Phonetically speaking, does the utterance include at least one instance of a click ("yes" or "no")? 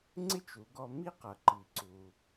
yes